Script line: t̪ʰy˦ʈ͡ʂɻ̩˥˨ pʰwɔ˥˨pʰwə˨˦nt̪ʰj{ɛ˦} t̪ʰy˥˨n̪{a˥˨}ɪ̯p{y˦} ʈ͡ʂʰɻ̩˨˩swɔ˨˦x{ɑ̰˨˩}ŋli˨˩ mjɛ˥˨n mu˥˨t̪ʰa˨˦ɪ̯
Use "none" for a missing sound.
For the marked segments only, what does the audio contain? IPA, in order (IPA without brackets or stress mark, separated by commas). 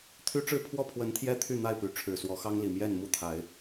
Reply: ɛ˦, a˥˨, y˨˦, ɑ˦